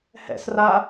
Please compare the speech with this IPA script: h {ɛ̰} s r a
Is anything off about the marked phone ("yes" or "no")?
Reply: no